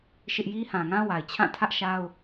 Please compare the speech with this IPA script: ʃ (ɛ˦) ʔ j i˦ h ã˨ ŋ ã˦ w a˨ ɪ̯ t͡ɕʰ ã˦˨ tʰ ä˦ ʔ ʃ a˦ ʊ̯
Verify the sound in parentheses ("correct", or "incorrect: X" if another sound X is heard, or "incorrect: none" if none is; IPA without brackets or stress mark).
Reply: incorrect: ɪ˦